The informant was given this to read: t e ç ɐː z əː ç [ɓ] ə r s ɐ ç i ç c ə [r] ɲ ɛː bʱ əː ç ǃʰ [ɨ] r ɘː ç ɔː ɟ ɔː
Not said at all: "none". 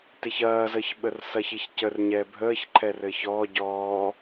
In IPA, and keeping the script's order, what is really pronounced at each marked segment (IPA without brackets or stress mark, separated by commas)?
ɓ, r, ɛ